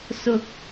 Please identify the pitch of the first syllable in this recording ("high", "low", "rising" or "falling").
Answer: high